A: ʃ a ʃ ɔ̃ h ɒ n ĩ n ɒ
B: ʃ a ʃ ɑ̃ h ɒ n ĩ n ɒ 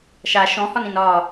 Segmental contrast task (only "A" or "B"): A